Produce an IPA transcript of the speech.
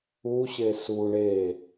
u ɕ e s u ɳ e

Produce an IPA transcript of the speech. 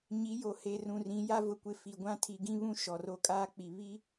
ɲ i˨˦ j o˨ h e˨ r ũ˨ r ĩ˨˦ j a˦ v ʊ˨ kʷ ɪ˨ f i˨ ɡʷ ã˦ tʰ i˨ ɡ ĩ˦ β ũ˦ ʃ ɔ˨ r o˦ kʼ aː˦ k͡p i˨ β i˦

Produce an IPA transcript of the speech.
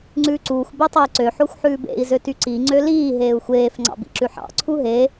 ŋ͡ǀ ʉː ǀ uː xʷ b ø tˤ u i̯ ǀ ø ħ o xʷ ħ ʉː b ḛ i̯ z ø t y ǀ i ŋ͡ǀ ø l iː ɦ eː u̯ xʷ eː f ŋ͡ǀ ɑ̰ b ḭ ǁ ʉ ħ ɑ̰ ǀʰ u ɦ e

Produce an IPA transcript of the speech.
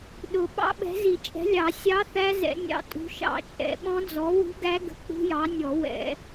ɗ ʊ˨˩˦ ɓ ɑ̰˦˥ ɓ ɛ̤˨˥ z i˨˩˦ t͡ʃʼ ɛ̤˨˥ lʲ ɑ˨˩˦ sʲ ɑ˦˥ θ æ˦˥ z ɛ̰˨˩˦ nʲ ɑ̰˦˥ tʼ ṳ˨˥ ʃ ɑ̰˨˩˦ t͡ʃʼ ɛ̰˨˩˦ ɓ ɔ̃˦˥ d͡z ɔ˨˥ w ṳ˦˥ ɡ æ˦˥ ɡ ə̤˦˥ k͡p ṳ˦˥ j ɑ˨˥ nʲ ɔ˨˩˦ w ɛ̰˨˩˦

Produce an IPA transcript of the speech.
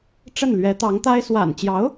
ʈ͡ʂ ə˥˩ n l ɥ ɛ˧˥ t̪ ɑ˧˥ ŋ t̪ a˥ ɪ̯ s w a̰˨˩ n t͡ɕ j ɑ˧˥ ʊ̯

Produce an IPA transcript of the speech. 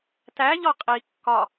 t æ ʎ ɔ qʼ i kː ɒ

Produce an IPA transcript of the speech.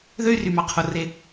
ð ø˥ y̯ r y˩ m ɑ˩ qʰ o˩ r e˩

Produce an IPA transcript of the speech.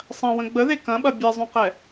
sˤ ɐ̃ w ə̃ ɡ͡b ə ð e k ɐ̃ ɓ ɐ bʲ e zˤ ũ q ɛ

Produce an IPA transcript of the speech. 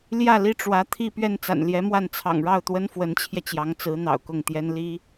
l j ä˥˩ l i˥ ʈ͡ʂ w ä˧˥ t̪ʰ i˥˧ p ɥ ɛ˥˩ n t͡s a̰˨˩ n l j ɛ˧˥ m w a˥˩ n t͡sʰ ɑ̰˨˩ ŋ ɻ ɑ˥˩ ʊ̯ t̪ w ə˥ n f w ə˧˥ n t͡ɕʰ j ɛ˧ t͡ɕ j ɑ˧˥ ŋ t͡s ɹ̩˧˥ n̪ ɑ̰˨˩ ʊ̯ k ʊ˥˩ ŋ t̪ j ɛ˥ n l i˥

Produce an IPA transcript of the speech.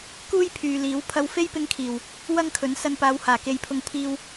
k uː˥ j pʰ yː˨ l iː˨˥ w pʰ ɐ˧ w f e˥ j p ɪ˧ ŋ kʰ iː˨˩ w | w ɐ˥ ŋ kʰ ɵ˨˥ n s ɐ˧ n p aː˨˧ w h aː˨˩ k e˨˧ j pʰ ʊ˧ ŋ pʰ iː˧ w

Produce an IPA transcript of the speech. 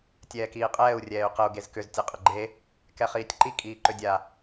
tʲ ɛː k iː qʼ ɛː u̯ rʲ ɛː y̯ q ə u̯ ɡ e z k ʏ z tʲ e qʼ ə ɡ͡ǃ e | k ɛ χ iː tʲ ǃ i kʼ iː ǃ ʏ dʲ a

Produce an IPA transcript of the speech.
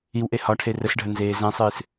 i w ʔ e h ɒ ʈʰ e r ə s ɖʱ ə n z eː z ɛ̃ sˤ ɨː s

